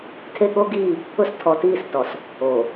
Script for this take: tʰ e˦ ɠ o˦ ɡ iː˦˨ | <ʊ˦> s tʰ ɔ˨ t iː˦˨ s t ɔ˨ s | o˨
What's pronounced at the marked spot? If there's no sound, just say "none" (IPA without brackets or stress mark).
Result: ʊ˦